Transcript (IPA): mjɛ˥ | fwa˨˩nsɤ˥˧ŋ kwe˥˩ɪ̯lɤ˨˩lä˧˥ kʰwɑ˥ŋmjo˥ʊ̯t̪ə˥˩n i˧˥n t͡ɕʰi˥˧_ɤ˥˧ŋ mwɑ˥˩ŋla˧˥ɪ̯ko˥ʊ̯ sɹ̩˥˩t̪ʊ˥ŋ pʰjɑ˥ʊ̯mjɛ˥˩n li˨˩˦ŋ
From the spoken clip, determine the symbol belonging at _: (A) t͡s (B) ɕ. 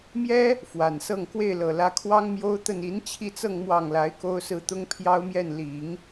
A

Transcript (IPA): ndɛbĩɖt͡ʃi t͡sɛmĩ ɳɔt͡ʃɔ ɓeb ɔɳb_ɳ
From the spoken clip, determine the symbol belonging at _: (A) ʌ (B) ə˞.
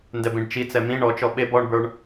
B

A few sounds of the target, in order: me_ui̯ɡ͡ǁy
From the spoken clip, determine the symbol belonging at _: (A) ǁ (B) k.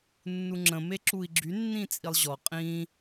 A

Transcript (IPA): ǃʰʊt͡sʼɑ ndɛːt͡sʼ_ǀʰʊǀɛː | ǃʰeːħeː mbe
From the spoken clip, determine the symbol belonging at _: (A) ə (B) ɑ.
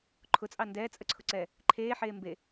A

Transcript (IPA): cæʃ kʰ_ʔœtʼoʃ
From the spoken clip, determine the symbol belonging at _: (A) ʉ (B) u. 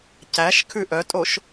A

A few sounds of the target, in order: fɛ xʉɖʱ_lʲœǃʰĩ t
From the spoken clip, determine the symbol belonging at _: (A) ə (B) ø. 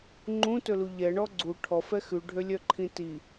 B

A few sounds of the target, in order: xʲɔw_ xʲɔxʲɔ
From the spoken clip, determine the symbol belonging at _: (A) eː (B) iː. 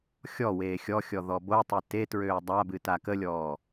A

